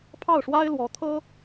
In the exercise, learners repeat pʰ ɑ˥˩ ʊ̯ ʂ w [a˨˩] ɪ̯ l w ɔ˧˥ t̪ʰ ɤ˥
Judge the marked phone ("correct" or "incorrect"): incorrect